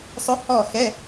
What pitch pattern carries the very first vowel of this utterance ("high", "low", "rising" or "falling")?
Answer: rising